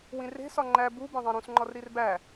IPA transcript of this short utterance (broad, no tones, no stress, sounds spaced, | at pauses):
w ĩ r e̤ s ɒ ŋ͡ǃ æ b u b ẽ ðˤ ẽ ɾ ũ s ŋ͡ǃ ɒ r ɾ i r b æ